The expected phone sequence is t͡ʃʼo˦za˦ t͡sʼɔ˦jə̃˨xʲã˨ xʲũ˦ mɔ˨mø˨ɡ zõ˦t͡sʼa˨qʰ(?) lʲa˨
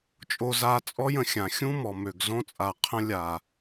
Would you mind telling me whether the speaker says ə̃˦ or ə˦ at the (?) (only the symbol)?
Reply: ə̃˦